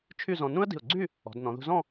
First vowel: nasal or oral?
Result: oral